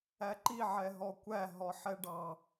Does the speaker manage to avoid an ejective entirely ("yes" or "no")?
yes